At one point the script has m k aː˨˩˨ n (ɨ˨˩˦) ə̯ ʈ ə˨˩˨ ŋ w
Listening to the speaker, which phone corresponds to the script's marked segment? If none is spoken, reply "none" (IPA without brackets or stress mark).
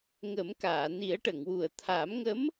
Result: i˨˩˦